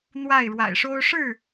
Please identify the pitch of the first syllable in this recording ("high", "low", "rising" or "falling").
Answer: falling